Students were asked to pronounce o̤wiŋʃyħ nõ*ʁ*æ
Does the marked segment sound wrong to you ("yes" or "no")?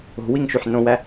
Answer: yes